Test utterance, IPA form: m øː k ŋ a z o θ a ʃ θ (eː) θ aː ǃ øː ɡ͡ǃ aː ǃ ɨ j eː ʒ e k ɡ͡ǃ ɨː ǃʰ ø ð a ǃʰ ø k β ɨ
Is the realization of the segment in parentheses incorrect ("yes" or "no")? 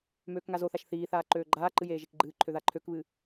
yes